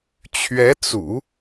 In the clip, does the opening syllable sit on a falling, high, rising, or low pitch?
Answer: rising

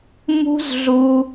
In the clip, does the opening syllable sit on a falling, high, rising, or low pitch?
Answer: high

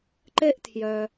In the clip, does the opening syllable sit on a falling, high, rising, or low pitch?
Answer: high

